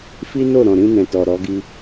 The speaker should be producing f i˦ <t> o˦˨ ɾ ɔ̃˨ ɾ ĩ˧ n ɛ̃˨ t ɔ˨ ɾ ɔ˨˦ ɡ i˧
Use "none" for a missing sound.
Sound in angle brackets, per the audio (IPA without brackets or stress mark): n